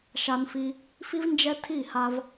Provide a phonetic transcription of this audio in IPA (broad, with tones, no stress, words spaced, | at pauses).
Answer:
ʃa˧nfi˧ | fi˦v nd͡ʒɛ˧ tʰi˦˨ha˧v